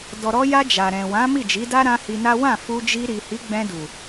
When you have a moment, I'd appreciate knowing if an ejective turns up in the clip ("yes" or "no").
no